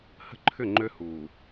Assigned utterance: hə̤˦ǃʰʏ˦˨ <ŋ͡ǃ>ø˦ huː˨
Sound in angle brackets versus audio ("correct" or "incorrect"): correct